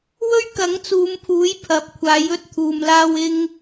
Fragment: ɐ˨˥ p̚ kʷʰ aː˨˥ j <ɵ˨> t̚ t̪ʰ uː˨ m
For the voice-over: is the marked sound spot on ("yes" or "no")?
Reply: no